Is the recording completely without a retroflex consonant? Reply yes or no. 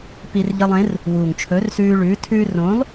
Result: no